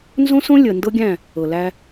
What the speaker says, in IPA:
nzõ˦sõ˦ lʲə˨ ndɤ˦ɡʲæ̃˦˨ | ɤ˨læ˦

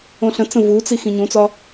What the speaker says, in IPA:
õɬə̃t͡sə̃ vut͡si xĩɲũt͡sɒ

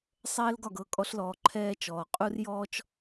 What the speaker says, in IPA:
sˤɛː˥lɡɒ˥˩ɡɤ˥˩ kʼɔ˥ɬlɔː˧ ǃʰɛː˥t͡ʃɔː˩ qʼu˥rjɔː˥t͡ʃ

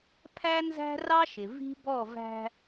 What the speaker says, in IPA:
pʰæ˦nzæ̤˦rɑ˦ʃɪ˨ vi̤˦bɔ˦˨væ̤˦

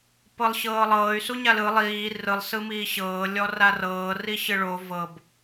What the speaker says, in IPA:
pɤlˠɕɤːlˠɤːy̯ suɲalɯ lˠiː rɯlˠ sɯmiːɕɤː lʲɔrarɤː riɕɯɭo vɤb

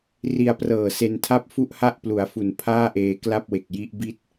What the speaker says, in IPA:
ri˧a̯prɤː˨˩se˧ntʰa˥˩p̚ fu˥˩ʔha˥˩ʔplu˩˦a̯fu˨˩n pʰaː˥˩ʔeː˧kla˥˩p̚we˨˩k̚ ji˦˥ʔ bi˥˩t̚

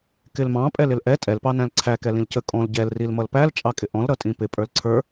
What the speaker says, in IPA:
kɪlmɑ̃ pʼɛlɪlʔɛ tʼɛl pɑnæ̃lǀʰæ kɛlĩlcə kʼɔ̃l ɟɛl rilmʌlpæl t͡ʃʼɑkʼɪʔɔ̃l ɾʌtʼĩpɪ pʼə˞lǀʰə˞

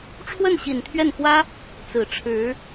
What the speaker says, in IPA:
ʈ͡ʂʰwə˥˩nɕi˨˩nt̪ʰɥɛ˥˩nxwä˥ | t͡sɹ̩˨˩ ʈ͡ʂʰɻ̩˧˥

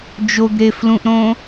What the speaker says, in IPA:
d͡ʒoɡɾeflũʔɾõ

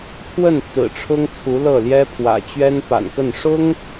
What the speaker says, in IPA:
pʰwə˥˩n t͡sɹ̩˨˩ʈ͡ʂʰʊ˥ŋt͡sʰu˧˥lɤ˥˩ ljɛ˥pʰwä̰˨˩ t͡ɕɥɛ˥npa̰˨˩nkə˥˩n ʂʊ˥ŋ

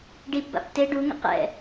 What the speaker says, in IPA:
ɖipba̰p te ɖuŋə̰ qɛ̰

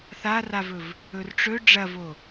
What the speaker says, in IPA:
θaravɵv | ɵrʈ͡ʂɵ ɖ͡ʐɐvo

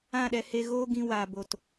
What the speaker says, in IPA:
ã˦˨ɗɛ˧he˧ ɣoː˦ɡĩ˧waː˨bo˨t

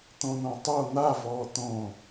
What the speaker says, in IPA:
t̪õn̪õtˤo n̪avɔː t̪õ

